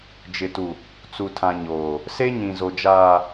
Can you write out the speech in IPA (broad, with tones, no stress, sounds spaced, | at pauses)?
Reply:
d͡ʒ ɪ˨ t u˨ | t͡s u˨ tʰ ã˨ ɲ oː˨ | s e˦ ɲ ĩ˨ z o˨ d͡ʒ aː˨